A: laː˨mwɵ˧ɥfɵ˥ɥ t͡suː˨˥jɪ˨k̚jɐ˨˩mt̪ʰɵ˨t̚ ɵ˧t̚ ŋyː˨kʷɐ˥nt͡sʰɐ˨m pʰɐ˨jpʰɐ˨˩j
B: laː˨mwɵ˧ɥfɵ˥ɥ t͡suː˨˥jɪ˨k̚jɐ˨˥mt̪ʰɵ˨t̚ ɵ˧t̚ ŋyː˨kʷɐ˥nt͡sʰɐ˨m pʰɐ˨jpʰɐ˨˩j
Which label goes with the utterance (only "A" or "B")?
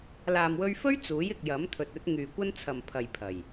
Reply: B